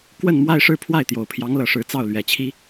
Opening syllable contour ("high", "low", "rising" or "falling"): falling